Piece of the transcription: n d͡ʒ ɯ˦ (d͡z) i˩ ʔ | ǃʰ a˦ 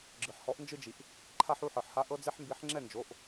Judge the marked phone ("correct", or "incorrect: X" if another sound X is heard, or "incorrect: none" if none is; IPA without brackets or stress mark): incorrect: d͡ʒ